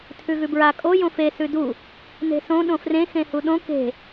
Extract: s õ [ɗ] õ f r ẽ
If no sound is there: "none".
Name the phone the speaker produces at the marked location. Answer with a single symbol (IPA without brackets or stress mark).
ɗ